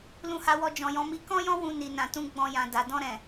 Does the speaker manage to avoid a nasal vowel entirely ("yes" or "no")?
no